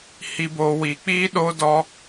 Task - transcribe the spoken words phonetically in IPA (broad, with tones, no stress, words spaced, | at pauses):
hi˦boː˦ wiː˧k͡piː˦ɗoː˦dɔ˦